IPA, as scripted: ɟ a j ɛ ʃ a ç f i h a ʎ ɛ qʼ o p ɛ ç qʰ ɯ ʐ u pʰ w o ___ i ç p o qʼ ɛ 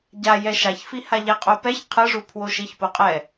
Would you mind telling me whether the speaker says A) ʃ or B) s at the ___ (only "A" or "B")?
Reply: A